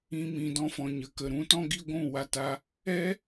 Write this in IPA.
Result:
ĩ˧ m ĩ˨ d ɔ̃˧ f ɔ̃˨ ɲ ə˨ k ə˨ ɾ ũ˨˦ t ɔ̃˦ ɡ i˧ ɡʷ ũ˦˨ w a˧ t a˧ | ɛ˦

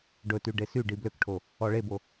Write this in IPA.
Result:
ɖ ɵ t y ɖ e s y ɖ i b l ø k ʈʰ o | ɔ ɭ e b o

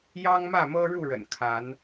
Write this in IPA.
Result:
j ɑ˦ ŋ m ä˥˨ m ɤ˦ ɻ u˥˨ ɻ ə̰˨˩ n kʰ a˨˦ n

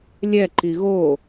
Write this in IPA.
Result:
lʲ ɛ ǃ i ɣ o

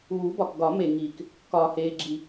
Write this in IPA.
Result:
uː˨˩˦ b ɒ˨ k ɡ ɒ˨˩˦ m e˨ ŋ iː˨ k | k ɒː˨ h eː˨ ɡ͡ǁ i˨

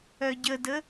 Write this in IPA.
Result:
œ ɟ ə d ə

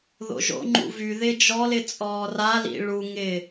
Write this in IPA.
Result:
ð o̰ ʒ o̰ ŋ͡ǃ ṵ v y ð ɪ d͡ʒ ɔ l ɪ t͡sʼ ɔː r a l ḭ ɭ u ŋ ɪ

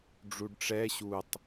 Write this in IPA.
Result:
ɖ͡ʐ u ɖ ʈ͡ʂ ɛ ɕ u tˤ

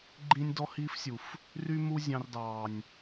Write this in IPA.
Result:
ɡ͡ǃ ĩ˦ nʲ d ɔ˦ h iː˦ f sʲ u˨ f | r y˦ m u˦ zʲ ɑ̃˦ r d ɑː˨ nʲ

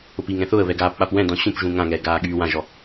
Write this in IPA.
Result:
ʊ p i ŋ ɛ̃ θ ʊ ə̯ β ɛ ɡ aː p ɓ a p w ɛ̃ d ɔ̃ ɕ ũ p ʒ ũ ŋ ã ŋ ɛː ɡ aː ɠ yː w ã ʒ ɔ

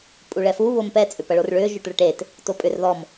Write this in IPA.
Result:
pʼ u ɭ ɛ f u β ʊ m p ɛ t͡sʼ ʏ p ɐ ɭ o r ɭ ʏː ʒ ʊ ʈ ɭ ə ʈ e t | t o pʼ ʏ r ð ɔ m

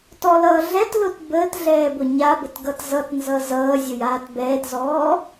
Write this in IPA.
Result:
t ɔ l ʌː ɮ ɛ t l ʊ t b əː t ɮ ɛː b ʊ ɲ a b ə t ɡ ʌ t z ʌ t n z ʌ z ʌː zʲ ʊ j aː t b ɛː t z ɔː

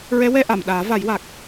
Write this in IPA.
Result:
ɹ ɛ˧˥ w ɛ˧ ʔ a˨˩˨ m ɗ aː˨˩˦ v a˨˩˦ j w a˨˩ k̚

